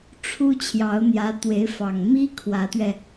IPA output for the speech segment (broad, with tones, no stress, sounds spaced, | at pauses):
ʈ͡ʂʰ u˥ t͡ɕʰ j ɑ˧˥ ʊ̯ n̪ j ä˧˥ t̪ w e˧˥ ɪ̯ f ɑ˨˩ ŋ m i˥ kʰ w ä˧˥ t̪ ɥ ɛ˧